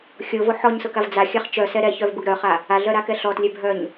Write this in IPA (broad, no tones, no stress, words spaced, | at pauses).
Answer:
xʲovo ħɔɲsʊkav d͡zaxʲaχ t͡ʃœsɛ ɾɛçœvbʊɡ ɾœχa | aɮœɾakɛ ɬɔtlʲɛ bʱœɲ